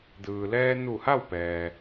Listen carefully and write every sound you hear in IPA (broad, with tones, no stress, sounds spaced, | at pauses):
d ɯː˩ l ɛː˧ n u˧˩ h a˥˨ w p ɛː˩